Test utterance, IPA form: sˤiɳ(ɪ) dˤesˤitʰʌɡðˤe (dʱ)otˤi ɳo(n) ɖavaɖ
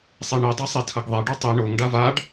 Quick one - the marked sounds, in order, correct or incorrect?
incorrect, incorrect, incorrect

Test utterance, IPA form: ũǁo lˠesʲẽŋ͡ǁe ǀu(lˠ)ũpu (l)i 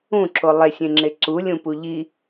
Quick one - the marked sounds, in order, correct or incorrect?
incorrect, incorrect

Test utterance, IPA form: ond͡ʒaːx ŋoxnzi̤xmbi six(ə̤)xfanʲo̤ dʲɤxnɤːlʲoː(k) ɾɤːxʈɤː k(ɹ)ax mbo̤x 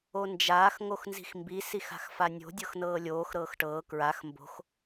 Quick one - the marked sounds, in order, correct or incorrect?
incorrect, incorrect, correct

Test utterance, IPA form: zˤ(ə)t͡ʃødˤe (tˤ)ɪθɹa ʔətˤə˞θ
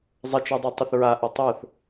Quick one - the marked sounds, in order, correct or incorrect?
correct, correct

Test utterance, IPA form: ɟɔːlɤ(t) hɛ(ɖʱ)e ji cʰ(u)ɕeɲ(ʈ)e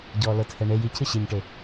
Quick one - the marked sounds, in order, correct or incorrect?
correct, incorrect, incorrect, correct

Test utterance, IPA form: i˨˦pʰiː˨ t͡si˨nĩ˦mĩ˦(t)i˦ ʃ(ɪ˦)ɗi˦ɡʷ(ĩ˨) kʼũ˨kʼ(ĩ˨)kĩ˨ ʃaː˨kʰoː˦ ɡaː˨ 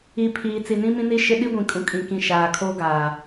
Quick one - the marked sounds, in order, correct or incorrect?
incorrect, correct, correct, correct

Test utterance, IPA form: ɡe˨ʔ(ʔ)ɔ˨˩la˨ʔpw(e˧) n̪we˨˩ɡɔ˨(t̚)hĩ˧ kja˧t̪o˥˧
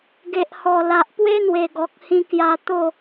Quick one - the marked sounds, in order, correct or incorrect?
incorrect, incorrect, incorrect

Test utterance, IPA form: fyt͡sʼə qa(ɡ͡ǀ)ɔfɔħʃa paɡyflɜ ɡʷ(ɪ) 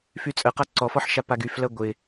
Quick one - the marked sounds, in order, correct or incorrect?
incorrect, correct

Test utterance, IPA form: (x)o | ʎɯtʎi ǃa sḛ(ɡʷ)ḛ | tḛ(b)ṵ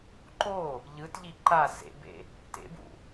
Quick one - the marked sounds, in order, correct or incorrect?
incorrect, incorrect, correct

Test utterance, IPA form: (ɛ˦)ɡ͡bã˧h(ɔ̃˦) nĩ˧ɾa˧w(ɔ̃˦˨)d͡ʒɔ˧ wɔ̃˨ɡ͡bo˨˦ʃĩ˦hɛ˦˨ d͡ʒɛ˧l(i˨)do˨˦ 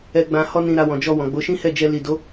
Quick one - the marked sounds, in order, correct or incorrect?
incorrect, incorrect, incorrect, correct

